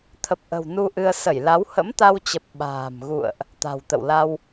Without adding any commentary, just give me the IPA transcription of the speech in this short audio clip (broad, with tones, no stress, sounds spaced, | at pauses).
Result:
t̪ʰ ə˨˩ p̚ ʔ ə̤˨˩ w n u˧ ʔ ɨ˧ ə̯ s ə˧˩ j l a˨˦ w h ə̰˧˥ m t̪ a˧ w t͡ɕ ə˨˩ p̚ ɓ a̤ː˨˩ m ɣ ṵ˧˨ ə̯ ʔ | t̪ a̤˨˩ w t̪ ə̰˧˨ w l a˧ w